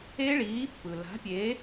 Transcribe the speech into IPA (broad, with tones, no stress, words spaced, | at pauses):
e˦˥ ɭiː˨˥pːɯ˩ la̤˨˥pʲe˨˥